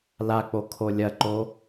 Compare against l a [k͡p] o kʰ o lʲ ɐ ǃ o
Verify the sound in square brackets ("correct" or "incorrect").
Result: correct